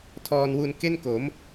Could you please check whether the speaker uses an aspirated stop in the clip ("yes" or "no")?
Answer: yes